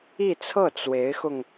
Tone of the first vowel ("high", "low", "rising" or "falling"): falling